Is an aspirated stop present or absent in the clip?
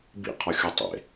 present